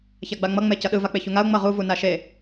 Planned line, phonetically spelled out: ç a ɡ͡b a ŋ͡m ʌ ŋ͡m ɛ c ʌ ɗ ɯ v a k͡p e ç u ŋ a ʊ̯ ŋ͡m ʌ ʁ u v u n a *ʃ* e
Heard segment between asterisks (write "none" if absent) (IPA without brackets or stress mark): ʃ